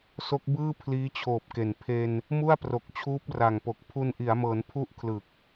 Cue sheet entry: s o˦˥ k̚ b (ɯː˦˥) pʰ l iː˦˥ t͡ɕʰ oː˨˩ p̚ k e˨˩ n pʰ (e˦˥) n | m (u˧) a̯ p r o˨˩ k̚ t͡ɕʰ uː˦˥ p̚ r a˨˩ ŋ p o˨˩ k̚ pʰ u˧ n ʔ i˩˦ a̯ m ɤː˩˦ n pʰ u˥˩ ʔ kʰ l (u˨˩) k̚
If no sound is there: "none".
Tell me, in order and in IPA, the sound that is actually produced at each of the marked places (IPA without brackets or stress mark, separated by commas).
ɯː˥˩, e˧, u˥˩, ɯ˨˩